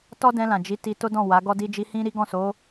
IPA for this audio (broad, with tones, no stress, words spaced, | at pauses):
tɔ˦dɛ̃˧lã˨d͡ʒi˨˦ ti˧to˦dɔ̃˦˨wa˨˦ ɡɔ˧di˧d͡ʒi˧ hĩ˦ɾi˦ɡɔ̃˦˨ so˨˦